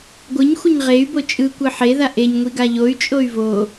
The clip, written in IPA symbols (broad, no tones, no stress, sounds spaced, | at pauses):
ɡʷ ɯ ɲ xʷ ʌ ɲ ʁ e y̯ b o t͡ʃʼ ɯ kʷ ɯ ħ e ð a ʔ e ɲ ŋʷ i ɡ a ʎ o y̯ t͡ʃʼ o y̯ v o